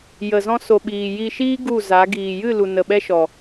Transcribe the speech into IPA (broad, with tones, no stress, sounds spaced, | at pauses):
j ə˨ z ɔ̃˧ s o˨ ɓ iː˨ j i˧ ʃ iː˦ ɡ u˦˨ z a˨˦ ɡ iː˨ j ɨ˦˨ l u˨ n ə˨ ɓ ɛ˦ ʃ ɔ˨